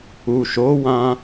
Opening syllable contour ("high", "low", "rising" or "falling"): low